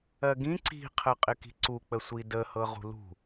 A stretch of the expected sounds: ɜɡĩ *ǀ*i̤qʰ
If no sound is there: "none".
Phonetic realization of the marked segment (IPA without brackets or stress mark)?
ǀ